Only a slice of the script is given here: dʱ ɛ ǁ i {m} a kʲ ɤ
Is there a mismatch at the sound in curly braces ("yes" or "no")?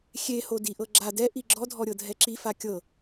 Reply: yes